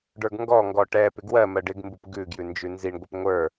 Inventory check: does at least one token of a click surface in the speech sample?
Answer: no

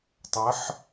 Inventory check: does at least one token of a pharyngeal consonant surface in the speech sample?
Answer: yes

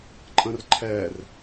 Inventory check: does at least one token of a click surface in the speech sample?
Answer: yes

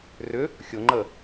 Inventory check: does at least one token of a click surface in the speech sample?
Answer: yes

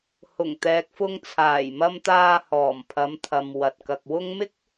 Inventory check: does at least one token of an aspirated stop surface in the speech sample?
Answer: yes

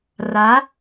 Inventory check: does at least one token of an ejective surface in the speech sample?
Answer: no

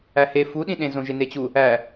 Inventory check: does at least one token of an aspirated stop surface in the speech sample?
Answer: no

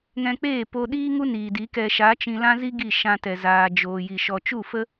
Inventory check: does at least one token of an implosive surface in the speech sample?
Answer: yes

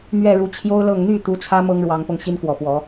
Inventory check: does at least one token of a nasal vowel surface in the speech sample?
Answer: no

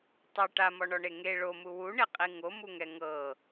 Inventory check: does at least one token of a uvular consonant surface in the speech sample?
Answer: yes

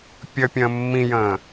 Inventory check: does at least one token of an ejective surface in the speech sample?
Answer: no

